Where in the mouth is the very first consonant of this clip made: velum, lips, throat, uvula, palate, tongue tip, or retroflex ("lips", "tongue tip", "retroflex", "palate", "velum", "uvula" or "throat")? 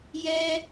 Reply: palate